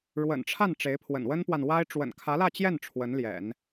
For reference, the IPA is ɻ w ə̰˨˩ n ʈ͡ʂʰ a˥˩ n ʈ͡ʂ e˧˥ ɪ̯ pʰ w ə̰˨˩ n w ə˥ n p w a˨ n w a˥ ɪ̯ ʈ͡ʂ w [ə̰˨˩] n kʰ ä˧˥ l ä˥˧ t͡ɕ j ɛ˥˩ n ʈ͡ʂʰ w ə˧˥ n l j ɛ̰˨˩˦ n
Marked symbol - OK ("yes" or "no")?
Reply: yes